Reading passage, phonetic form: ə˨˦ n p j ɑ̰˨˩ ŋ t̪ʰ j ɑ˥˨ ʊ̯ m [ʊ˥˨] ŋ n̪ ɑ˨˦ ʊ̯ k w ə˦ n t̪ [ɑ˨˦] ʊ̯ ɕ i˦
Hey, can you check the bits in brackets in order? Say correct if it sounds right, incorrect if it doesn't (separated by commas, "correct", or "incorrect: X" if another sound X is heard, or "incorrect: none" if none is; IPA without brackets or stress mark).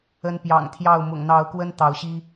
incorrect: ʊ̰˨˩, correct